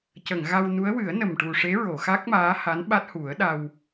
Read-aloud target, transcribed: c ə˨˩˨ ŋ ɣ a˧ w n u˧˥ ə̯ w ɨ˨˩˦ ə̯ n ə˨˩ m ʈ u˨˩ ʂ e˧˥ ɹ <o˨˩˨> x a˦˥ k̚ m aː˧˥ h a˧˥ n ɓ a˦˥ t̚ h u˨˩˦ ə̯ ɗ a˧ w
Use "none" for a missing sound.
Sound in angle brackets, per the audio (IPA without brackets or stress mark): o˨˩˨